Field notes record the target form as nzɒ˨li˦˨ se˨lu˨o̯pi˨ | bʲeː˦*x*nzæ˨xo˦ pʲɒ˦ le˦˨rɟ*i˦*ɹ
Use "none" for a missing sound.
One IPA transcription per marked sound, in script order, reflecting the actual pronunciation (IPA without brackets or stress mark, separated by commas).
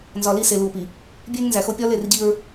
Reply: ŋ, i˦